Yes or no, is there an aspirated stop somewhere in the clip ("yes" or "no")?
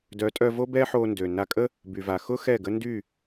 no